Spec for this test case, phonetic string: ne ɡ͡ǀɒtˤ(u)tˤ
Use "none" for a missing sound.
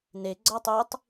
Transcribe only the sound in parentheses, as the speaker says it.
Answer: u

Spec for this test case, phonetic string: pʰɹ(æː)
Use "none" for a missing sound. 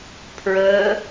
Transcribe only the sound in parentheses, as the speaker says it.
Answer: əː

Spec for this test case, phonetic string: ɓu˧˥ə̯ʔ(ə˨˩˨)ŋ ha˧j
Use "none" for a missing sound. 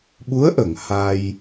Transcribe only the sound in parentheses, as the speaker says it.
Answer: ə˨˩˨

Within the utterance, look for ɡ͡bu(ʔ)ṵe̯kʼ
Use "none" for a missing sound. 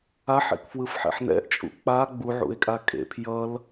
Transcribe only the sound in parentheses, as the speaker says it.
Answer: ʕ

